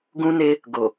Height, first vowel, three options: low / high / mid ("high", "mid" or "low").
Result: high